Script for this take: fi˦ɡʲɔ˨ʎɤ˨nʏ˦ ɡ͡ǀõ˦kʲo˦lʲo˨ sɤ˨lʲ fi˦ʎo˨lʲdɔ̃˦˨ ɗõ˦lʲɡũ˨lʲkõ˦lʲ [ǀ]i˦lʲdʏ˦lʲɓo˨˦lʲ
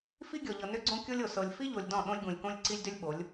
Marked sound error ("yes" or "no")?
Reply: no